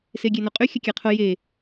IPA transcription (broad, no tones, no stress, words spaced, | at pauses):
seɡʲenoqʼy xʲəkʲɛqʰo je